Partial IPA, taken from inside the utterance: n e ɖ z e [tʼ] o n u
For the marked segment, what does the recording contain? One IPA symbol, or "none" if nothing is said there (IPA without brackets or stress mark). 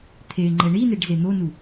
n̪